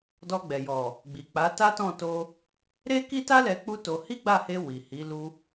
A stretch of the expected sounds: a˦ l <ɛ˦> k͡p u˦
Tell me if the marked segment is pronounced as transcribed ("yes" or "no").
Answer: no